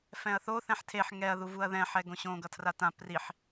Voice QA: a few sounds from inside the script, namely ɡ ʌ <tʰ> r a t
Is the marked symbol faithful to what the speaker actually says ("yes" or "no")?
yes